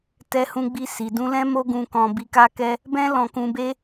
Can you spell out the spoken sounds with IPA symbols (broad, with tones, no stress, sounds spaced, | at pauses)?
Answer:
t ɛ˧ h ũ˧ ɡ͡b i˧ s i˨ d ũ˧ l ɛ̃˦ m o˦ ɡ ũ˧ k ɔ̃˧ b i˧ k a˦ k ɛ˦ | b ɛ̃˦ l ɔ̃˧ k ũ˧ b e˦